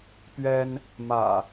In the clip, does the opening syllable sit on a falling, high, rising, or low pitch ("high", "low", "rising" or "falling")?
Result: high